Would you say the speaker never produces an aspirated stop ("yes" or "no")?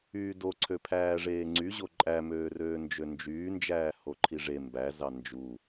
no